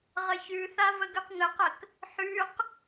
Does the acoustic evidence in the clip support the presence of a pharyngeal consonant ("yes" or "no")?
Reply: yes